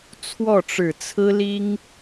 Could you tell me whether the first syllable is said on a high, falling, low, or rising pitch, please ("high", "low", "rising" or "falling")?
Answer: falling